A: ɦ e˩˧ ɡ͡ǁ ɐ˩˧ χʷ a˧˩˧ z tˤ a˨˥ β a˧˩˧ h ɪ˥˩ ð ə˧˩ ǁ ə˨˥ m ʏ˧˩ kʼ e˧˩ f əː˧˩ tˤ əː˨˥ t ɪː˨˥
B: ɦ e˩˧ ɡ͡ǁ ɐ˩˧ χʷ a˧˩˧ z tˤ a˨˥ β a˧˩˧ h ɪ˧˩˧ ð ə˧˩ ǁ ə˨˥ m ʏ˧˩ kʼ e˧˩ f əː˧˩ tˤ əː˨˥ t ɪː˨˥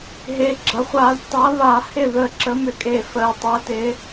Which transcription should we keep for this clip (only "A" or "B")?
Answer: A